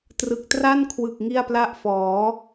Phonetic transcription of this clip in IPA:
t r ɯ˨˩ k̚ t r a˥˩ n kʰ w ɯ˨˩ k̚ ŋ i˥˩ a̯ p l a˥˩ ʔ f ɔː˩˦

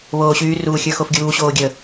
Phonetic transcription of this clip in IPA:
β oː ɕ yː r uː xʲ ə˞ x o f ɡʲ uː ɕ oː ɡʲ ə

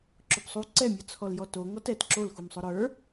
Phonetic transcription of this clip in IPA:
ǁ ʊ p sˤ u ǀ ɛ mʲ ə˞ t͡sʰ ɔ l j ɔ t o ŋ ɔ t ɛ t ǁ o l x u m sˤ ʊ ɾ ə˞

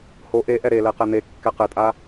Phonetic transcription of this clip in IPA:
h o ʔ e ʔ ɛ ɾ e l ɛ q ɛ n̪ e kː ɛ q ɘ tʼ a

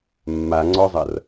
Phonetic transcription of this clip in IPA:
mː a ŋ͡ǀ ɔ zˤ ɐ r

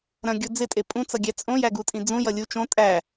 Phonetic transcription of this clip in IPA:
ɾ ɐ̃ ɡʲ o d͡z ɪ tʼ e pʼ ũ t͡s ʌ ɡʲ æ t͡sʼ õ j æ ɡ u tʼ ĩ d͡z ũ j ʌ lʲ u t͡ʃ õ tʼ æ

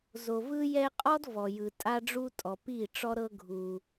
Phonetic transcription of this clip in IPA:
z o˨ v ɯ˦ j ɛ˦ qʼ ɔ˦ d v ɔ˨ j ɯ˨ tʼ a˦ ɖ͡ʐ u˦ tʼ ɔ˨ p i˦˨ ʈ͡ʂ ɔ˦ ɾ ɤ˦ ɡʱ u˦

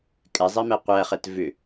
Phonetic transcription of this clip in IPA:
kʼ ɛ zˤ ɛ m ɛ qʷ æ χ ɛ t v ʏ

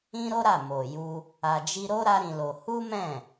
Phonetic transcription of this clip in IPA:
ĩ˦ ɾ o˦ ɾ a˦˨ m o˨ j u˧ | a˨ d͡ʒ i˧ ɾ o˦ ɾ a˦ ɾ ĩ˧ l o˧ h u˦ m ɛ̃˦˨

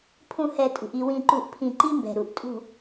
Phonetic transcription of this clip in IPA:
pʰ ũ˨ h ɛ˨ tʼ ṳ˨ ʔ i˨ w ĩ˨ ǃ u˨ ʔ pʰ ĩ˨ ǃ i˦ m b ɛ̤˨ ɾ u˨ ʔ tʼ ṳ˨

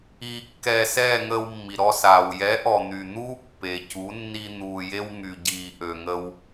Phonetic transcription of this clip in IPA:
iː˧ kː ɛː˧ s ɛː˦˨ ŋ əː˧ w mː i˨ ɾ ɔ˧ s aː˨ w j ɛ˨˦ ʔ ɔ˨ n̪ y˨ n̪ uː˦ pː e˨ c u˨˦ nː i˧ n̪ uː˨ j e˧ w ŋ y˨ ɟ iː˨ ʔ ø˨ ŋ ə˧ w

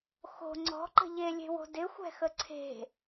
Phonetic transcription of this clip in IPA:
x o̤ ŋ͡ǀ ɔ̤ ǃ ə̤ ʎ e lʲ e̤ w o̤ d ɪ xʷ ɛ̤ x ə ǀʰ e̤

